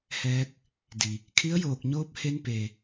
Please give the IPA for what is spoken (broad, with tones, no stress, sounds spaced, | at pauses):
h ɛː˧ k̚ | d i˩ | kʰ i˧˥ ə̯ j oː˧˩ k̚ ɲ oː˧˥ p̚ h e˧ n p e˩